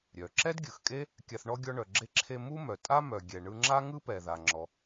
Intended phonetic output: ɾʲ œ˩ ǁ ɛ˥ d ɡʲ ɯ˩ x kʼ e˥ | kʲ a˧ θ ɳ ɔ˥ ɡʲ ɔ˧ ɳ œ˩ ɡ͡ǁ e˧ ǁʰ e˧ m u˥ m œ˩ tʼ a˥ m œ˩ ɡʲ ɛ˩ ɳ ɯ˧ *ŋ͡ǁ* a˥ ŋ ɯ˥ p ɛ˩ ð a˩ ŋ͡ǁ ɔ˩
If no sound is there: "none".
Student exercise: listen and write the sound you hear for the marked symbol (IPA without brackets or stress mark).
ŋ͡ǁ